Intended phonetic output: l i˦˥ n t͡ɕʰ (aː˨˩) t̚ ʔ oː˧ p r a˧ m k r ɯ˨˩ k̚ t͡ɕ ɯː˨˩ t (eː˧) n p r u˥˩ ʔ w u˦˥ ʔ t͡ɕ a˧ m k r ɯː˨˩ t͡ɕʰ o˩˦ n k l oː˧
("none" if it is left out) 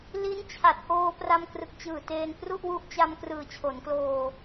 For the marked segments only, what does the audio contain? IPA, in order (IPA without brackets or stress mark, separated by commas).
a˨˩, eː˧